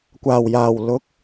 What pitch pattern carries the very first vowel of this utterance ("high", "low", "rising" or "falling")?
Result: low